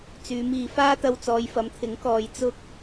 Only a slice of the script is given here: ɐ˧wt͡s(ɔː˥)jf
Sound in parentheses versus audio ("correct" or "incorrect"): incorrect